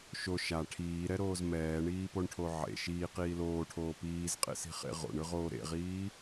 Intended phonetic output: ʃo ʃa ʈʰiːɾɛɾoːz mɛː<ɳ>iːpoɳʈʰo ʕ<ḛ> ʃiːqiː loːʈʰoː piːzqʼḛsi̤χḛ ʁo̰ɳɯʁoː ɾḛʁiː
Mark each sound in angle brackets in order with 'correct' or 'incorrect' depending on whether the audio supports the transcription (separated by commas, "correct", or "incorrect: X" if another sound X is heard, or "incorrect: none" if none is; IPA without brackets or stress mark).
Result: correct, correct